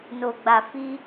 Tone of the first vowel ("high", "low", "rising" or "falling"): low